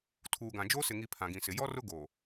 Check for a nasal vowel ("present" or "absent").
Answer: present